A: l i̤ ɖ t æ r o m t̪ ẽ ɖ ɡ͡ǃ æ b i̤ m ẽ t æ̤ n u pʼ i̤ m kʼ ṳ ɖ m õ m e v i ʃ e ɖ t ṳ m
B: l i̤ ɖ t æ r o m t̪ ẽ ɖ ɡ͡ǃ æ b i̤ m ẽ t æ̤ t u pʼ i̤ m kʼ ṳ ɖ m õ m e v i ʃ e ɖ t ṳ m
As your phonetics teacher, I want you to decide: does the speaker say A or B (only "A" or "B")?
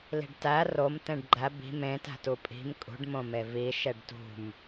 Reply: B